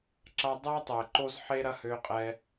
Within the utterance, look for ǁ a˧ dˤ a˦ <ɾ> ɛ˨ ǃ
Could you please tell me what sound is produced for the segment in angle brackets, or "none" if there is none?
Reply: tˤ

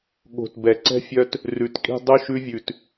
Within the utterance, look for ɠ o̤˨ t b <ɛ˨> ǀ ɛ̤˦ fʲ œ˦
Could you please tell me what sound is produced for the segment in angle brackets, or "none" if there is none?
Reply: ɛ˨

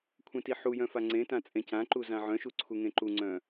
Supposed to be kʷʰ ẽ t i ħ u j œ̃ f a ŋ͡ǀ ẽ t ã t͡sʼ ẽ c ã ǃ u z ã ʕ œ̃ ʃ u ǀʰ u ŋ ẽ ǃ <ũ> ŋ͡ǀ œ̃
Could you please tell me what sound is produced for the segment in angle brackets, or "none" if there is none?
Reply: u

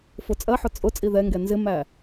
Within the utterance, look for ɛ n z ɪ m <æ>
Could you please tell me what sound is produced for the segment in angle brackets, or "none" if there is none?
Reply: æ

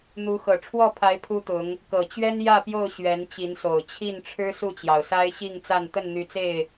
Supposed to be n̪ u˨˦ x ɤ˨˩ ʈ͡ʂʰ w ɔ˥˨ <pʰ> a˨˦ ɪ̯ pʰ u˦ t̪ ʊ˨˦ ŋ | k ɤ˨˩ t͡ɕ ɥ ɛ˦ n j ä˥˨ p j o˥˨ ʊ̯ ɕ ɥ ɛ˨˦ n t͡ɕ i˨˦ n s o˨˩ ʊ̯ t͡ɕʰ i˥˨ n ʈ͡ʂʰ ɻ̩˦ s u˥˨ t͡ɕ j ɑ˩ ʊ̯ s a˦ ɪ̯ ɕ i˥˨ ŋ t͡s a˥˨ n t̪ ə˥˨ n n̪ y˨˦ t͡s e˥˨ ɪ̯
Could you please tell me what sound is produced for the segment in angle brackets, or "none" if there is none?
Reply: pʰ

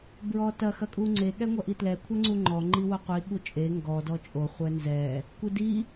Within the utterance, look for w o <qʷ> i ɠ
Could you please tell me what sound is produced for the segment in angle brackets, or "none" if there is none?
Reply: qʷ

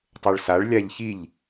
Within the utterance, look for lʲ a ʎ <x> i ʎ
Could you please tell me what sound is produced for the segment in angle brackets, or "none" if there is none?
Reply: ç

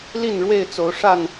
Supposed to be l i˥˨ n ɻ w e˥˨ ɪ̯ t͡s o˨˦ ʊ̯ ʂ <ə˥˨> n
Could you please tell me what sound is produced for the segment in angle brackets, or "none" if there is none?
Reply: a˥˨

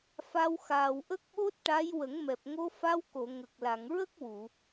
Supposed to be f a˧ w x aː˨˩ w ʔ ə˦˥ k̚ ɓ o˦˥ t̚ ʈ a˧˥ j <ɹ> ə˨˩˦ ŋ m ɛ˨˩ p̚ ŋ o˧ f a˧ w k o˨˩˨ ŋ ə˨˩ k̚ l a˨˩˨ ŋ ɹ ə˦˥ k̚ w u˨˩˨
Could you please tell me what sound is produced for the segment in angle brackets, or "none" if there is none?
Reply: w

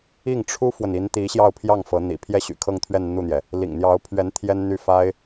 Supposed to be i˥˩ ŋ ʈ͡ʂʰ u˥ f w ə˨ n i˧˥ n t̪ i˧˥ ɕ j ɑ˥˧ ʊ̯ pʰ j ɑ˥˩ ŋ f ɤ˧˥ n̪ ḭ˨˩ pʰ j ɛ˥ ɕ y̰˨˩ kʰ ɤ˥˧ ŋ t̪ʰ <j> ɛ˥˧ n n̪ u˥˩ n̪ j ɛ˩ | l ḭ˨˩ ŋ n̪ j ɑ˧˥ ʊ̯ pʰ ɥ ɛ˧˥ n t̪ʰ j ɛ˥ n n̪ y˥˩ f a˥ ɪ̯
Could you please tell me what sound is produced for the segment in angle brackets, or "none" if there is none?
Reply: ɥ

